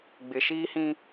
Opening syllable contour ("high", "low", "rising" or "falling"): low